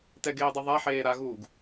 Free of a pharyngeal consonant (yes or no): no